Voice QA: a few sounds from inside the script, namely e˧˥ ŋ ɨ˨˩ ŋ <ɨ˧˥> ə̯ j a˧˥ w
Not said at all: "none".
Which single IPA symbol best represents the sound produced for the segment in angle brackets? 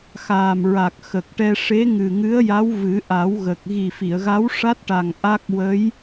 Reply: ɨ˧˥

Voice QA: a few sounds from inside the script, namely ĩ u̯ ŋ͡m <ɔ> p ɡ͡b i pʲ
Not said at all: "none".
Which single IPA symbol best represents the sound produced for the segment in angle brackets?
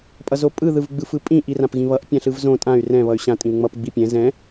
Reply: ʌ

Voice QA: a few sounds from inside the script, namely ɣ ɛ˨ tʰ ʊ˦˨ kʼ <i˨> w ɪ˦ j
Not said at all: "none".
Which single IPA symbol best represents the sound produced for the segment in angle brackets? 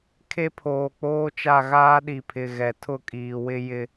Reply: iː˨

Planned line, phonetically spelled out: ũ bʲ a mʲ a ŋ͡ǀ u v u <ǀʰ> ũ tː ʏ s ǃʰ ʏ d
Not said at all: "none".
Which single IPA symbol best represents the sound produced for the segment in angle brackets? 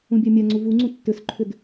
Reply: ŋ͡ǀ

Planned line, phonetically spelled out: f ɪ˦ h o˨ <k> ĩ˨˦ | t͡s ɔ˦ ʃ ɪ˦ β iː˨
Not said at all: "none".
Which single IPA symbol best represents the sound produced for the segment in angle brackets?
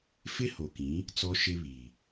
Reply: k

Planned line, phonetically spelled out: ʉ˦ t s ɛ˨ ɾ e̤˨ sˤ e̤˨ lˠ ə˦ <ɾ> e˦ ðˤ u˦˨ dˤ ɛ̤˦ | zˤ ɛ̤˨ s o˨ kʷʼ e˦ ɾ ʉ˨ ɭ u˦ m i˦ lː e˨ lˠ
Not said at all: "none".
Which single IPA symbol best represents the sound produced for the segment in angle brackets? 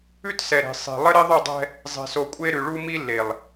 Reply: ɾ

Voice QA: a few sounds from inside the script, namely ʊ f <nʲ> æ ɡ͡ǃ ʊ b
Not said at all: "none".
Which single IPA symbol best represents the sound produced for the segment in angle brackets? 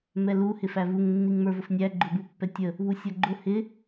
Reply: nʲ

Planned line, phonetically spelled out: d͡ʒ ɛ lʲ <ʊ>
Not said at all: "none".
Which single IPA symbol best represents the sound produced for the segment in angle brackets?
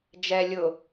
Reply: ʊ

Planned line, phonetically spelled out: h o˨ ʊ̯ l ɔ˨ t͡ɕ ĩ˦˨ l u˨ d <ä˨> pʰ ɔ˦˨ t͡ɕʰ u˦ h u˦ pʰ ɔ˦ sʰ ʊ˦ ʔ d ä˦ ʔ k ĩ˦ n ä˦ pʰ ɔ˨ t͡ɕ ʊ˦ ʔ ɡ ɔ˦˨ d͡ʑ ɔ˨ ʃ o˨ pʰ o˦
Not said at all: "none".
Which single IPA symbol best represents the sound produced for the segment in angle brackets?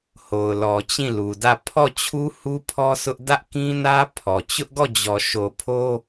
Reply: ä˦˨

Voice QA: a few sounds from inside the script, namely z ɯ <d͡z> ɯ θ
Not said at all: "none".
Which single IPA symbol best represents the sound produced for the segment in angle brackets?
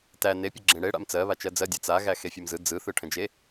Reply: d͡z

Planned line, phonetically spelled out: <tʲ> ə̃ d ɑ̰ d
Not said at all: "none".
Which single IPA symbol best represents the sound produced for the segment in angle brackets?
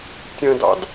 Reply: tʲ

